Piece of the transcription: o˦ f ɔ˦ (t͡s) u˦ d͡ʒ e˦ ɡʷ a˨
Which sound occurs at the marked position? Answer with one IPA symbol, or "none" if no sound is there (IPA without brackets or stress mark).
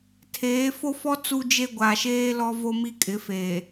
t͡s